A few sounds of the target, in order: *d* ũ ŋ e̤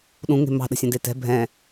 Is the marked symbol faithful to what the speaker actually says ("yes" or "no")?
no